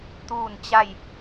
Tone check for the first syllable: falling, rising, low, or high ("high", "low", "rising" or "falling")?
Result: falling